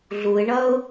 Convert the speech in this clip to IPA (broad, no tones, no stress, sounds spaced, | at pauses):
ɮ u ɪ̯ ɳ ʌ ʊ̯